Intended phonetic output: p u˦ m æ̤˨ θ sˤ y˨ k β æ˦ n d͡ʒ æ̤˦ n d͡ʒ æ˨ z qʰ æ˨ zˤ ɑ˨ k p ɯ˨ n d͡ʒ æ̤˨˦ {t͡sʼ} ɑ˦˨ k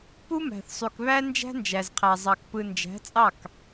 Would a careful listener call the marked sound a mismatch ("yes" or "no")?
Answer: no